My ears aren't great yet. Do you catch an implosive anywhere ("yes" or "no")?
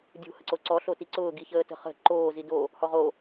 no